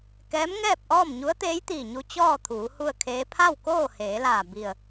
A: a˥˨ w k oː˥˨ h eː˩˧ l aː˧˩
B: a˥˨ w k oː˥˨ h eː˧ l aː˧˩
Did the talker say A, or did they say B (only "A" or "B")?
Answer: A